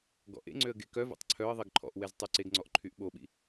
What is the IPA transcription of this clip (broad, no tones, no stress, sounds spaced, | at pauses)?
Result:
ɡ ɔ̰ ʔ ḛ ŋ͡ǀ ø ə̯ ɡ e k œ v ḛ tˤ ǀʰ œ ə̯ ðˤ i ɡ ǃʰ ɔ̰ ʔ w ɛ z tˤ y ǀ e ɡ ŋ͡ǀ ɔ ʔ ǃʰ y ʔ ɓ o ɓ ḭ